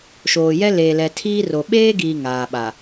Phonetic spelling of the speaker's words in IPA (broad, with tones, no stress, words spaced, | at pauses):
ʃoː˨jɛ˦ leː˨lɛ˨ tʰiː˦ro˨ ɓeː˦ɡiː˨ ŋaː˨ɓa˨